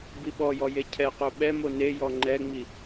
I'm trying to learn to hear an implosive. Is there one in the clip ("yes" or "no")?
yes